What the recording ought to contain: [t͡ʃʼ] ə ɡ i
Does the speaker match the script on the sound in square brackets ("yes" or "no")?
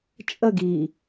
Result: yes